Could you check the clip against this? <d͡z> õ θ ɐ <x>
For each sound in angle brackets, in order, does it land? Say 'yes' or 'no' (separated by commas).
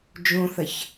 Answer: no, no